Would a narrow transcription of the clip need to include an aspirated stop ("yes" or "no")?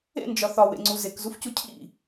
yes